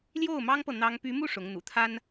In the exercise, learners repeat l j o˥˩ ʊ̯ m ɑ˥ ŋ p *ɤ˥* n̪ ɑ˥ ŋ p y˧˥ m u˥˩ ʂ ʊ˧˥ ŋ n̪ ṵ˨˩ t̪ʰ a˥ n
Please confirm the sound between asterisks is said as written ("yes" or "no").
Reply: no